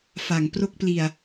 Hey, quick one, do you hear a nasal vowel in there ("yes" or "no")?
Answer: no